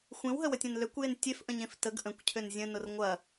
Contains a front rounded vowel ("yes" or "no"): yes